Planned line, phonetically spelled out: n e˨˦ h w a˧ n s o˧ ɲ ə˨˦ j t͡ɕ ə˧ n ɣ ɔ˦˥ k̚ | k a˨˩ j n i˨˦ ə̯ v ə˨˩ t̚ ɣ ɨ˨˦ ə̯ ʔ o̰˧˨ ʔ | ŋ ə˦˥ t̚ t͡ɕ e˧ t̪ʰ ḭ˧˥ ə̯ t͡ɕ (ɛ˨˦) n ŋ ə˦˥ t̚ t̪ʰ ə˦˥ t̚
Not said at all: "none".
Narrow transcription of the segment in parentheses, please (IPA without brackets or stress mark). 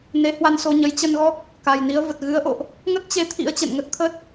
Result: ɛ̰˧˨